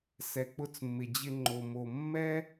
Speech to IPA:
s ɛ˩ k͡p ʊ˧ t͡s mː ɪ˩ d͡ʑ ɪ˧ ŋ͡ǃ o˩ m o˩ mː ɛ˥

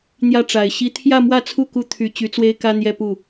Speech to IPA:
n̪ j ä˥˩ ʈ͡ʂ a˨˩ ɪ̯ ɕ i˥ t̪ʰ j ä˥˧ m w ä˥˧ t͡sʰ u˥˩ k u˥ t̪ʰ y˧˥ t͡ɕ y˧˥ t͡s w e˥ ɪ̯ k ä˥ n̪ j ɛ˥˧ p u˥˩

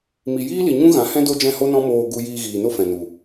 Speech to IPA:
m i˨ j iː˦ l i˨ ɲ ũ˦ ɣ ã˨˦ h ɛ̃˦ d o˦ d͡ʒ ɛ̃˦˨ h o˦ n ɔ̃˦ m oː˧ ɡ u˧ j iː˧ ɣ iː˨ n o˦ f ɛ̃˨ n u˨

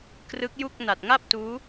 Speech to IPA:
k r ɯ˦˥ k̚ j u˥˩ k̚ n a˨˩ t̚ ŋ a˥˩ p̚ t uː˦˥

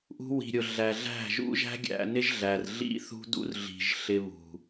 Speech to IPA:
ʔ ṳ˧ w i̤˨ ɾʲ ʊ˨ ɮ æ˨ ɮ æ̤˦˨ ʒ ṵ˦ ʒ æ̤˦ ɡʲ æ̰˧ n ɪ˦ ʒ ɮ æ˨ r ɮ ḭ˦ θ ṳ˦ d ṵ˦ r ɮ i̤˨ ʒ ɬ ɪ˧ β ṳ˨

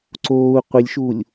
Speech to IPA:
ǀ oː u̯ qʷ i lʲ ʃ uː lʲ

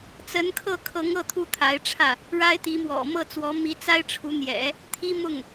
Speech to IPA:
t͡s ə˧˥ n kʰ ɤ˥˩ kʰ ɤ˧˥ ŋ ɤ˥˩ t̪ʰ u˥ t̪ʰ a˧˥ ɪ̯ ʈ͡ʂʰ ä˥˩ | ɻ a˥ ɪ̯ t̪ i˧˥ m w ɔ̰˨˩ m ɤ˥˩ t͡s w ɔ˧˥ m i˧˥ t͡s a˥ ɪ̯ ʈ͡ʂʰ u˧˥ n̪ j ɛ̰˨˩˦ | t̪ʰ i˥ m ʊ˥˩ ŋ

